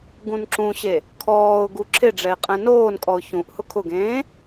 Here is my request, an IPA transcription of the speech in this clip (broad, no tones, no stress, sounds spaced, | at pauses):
ɡ ũ n ǁ ũ ɕ e | kʰ ɔː ʊ̯ ɡ u ǁʰ ɪ ɖ͡ʐ ɛ ɪ̯ qʼ ɛ̃ n oː n kʼ ɔ ʊ̯ ç ũ ʔ h ʊ kʰ ʊ ɡ ẽː